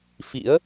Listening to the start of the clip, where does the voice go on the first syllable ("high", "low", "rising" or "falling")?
rising